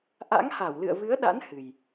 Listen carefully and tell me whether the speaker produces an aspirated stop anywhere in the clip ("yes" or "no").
no